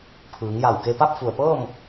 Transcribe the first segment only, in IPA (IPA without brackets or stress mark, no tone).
pʰ